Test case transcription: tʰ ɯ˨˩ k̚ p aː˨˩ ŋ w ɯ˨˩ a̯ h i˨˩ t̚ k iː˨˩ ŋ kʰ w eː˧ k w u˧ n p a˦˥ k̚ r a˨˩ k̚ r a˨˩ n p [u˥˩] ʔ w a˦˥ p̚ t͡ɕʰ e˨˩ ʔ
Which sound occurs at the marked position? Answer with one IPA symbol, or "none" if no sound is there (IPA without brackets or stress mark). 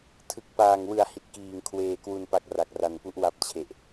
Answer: u˦˥